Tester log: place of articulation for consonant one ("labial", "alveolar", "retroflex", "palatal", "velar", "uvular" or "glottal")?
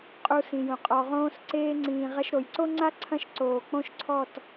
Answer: uvular